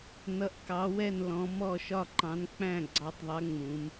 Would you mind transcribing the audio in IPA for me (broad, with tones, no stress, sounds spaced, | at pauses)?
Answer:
n ʌ˩˧ ʔ k ɑ˩˧ w ɛ˧˩ n l ɔ̃˩˧ m ɔ˧˩ ʃ ɒ˧˩ ǃ ɑ̃˩˧ n k͡p æ̃˧˩ ɡ͡ǀ ɑ˩˧ tˤ ðˤ ɜ˩˧ ŋ͡m ũ˩˧ m